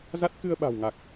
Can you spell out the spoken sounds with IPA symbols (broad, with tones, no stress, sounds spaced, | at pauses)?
z a˦˥ t̚ k ɨ˧ ə̯ ɓ a̤˨˩ w ŋ a˨˩ k̚